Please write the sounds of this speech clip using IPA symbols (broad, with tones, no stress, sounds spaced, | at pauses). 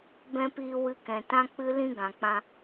b ɛ̃˧ p iː˧ w ɨ˧ k ɛ̃˨ t ã˦ k͡p ɨ˦ l ĩ˦ ɡ ã˨ k͡p ã˧